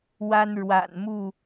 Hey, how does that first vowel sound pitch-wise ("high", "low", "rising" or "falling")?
high